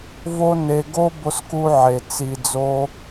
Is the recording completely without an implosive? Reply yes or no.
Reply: yes